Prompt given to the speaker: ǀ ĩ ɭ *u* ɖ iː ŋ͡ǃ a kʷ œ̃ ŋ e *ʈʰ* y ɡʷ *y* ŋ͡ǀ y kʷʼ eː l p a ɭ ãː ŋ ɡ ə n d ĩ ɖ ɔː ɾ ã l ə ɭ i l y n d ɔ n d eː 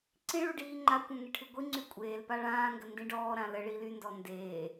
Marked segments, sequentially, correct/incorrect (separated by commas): correct, correct, incorrect